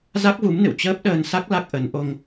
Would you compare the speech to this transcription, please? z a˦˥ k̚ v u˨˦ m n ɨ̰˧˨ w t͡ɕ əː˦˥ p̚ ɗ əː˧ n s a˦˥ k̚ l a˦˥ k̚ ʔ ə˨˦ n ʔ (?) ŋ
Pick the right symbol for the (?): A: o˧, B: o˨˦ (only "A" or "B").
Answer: A